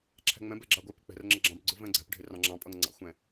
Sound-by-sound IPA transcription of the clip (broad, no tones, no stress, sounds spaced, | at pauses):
ǁʰ æ̤ ŋ͡m ɛ̃ b ɛ ɡ͡ǁ ɑ ɡʷ ɛ p ɪ k͡p ɛ̤ r ŋ͡ǁ ʌ ɡ͡ǁ ɑ̃ b ɡ͡ǀ ʊ v ɛ̃ ɡ͡ǀ æ̤ p ɖʱ ɪ r ɑ̃ ŋ͡ǁ ɑ̃ pʼ ʌ ŋ ŋ͡ǀ ɑ̰ xʷ ɛ̃